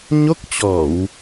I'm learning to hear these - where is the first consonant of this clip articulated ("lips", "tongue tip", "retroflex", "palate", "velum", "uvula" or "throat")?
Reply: palate